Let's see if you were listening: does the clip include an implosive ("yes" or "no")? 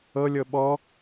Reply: yes